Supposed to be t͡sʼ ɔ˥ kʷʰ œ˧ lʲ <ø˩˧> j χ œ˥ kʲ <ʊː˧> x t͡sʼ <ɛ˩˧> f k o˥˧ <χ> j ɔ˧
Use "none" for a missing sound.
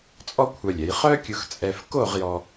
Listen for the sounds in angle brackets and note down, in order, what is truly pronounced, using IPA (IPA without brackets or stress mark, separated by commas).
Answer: ɛ˩˧, ʊ˧, ɛ˧, ʁ